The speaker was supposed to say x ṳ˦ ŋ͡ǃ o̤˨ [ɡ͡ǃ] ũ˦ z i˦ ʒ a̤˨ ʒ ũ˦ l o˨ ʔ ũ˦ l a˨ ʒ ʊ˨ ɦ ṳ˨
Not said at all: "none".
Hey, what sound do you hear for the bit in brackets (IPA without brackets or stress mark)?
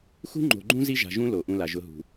ɡ͡ǃ